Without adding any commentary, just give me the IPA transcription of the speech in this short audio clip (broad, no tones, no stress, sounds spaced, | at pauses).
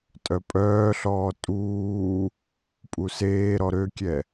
tʼ œ pʼ œː ɬ ɔː tʼ uː | pʼ u s eː ɾ ɔ ɾ ø kʲ ɛ